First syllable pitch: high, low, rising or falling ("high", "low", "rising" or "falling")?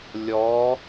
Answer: rising